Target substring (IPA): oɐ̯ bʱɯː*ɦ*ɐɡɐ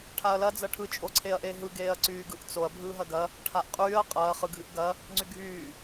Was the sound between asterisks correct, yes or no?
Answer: yes